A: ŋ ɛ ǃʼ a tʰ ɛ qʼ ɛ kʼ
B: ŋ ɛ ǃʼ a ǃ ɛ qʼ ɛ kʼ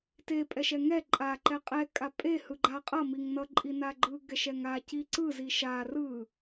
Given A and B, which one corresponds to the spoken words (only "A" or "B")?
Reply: B